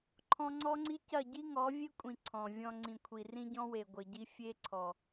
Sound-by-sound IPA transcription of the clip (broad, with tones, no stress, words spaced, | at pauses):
ǃʰɔ̃˧ŋ͡ǀɔ˦ŋ͡ǀi˦ cɐ˦˨ɟi˦ŋɔ˨˦ vʲe˦kʷʼĩ˨ ǀʰɔ̃˨vʲɔ̃˧ ŋ͡ǀĩ˨ kʷʰi˨rĩ˧ɟɔ̃˧we˨ ɡʷɘ˨ɟi˧ fʲe˧ǀʰɔ˨